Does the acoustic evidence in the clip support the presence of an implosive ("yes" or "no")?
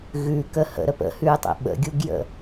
yes